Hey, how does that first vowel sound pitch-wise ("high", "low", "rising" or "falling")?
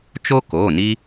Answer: high